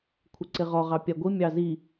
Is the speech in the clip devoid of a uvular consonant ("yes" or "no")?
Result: no